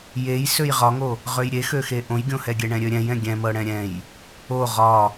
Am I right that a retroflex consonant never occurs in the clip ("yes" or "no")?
no